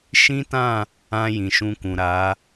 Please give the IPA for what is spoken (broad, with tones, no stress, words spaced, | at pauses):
ʃĩ˦tã˦˨ | ã˧ jĩ˨ʃũ˧kũ˨ ɾa˨˦